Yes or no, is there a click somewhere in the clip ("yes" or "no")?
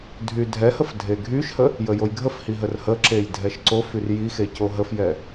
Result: yes